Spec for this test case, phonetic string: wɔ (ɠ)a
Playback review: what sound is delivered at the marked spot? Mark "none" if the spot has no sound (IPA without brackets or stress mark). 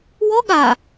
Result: ɠ